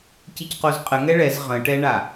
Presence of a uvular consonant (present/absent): present